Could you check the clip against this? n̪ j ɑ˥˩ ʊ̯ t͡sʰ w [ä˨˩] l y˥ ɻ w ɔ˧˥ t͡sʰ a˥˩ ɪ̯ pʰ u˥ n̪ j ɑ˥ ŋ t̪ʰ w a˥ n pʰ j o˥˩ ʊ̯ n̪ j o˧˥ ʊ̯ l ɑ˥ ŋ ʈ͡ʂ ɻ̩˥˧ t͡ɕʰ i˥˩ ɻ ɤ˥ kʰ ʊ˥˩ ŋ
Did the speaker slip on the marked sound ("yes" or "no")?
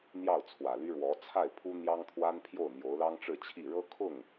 no